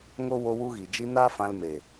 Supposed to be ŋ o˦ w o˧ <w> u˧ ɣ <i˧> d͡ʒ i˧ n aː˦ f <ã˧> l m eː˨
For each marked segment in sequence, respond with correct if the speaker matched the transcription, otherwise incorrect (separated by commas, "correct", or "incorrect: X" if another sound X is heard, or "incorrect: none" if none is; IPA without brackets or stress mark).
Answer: correct, incorrect: i˨, correct